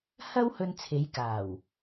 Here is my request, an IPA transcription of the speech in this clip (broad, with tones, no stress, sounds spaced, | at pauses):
h ɐ˥ w h ɵ˧ n t͡sʰ e˨˧ j k aː˨˩ w